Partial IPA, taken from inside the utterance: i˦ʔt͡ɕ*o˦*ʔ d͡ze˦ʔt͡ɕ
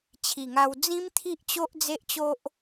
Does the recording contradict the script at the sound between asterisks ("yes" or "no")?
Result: no